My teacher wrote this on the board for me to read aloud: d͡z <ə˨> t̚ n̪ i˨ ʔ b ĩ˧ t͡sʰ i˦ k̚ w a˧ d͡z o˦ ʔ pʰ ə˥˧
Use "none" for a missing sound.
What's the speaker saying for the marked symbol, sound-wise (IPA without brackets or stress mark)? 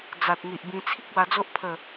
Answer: a˨